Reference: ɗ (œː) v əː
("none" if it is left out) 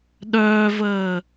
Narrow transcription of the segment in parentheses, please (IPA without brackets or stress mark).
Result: œː